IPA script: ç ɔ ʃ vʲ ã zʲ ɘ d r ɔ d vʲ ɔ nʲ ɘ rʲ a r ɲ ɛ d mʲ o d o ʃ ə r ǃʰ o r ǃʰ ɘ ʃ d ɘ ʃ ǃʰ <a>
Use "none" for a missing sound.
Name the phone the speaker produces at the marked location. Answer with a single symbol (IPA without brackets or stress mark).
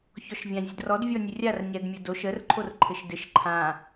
ã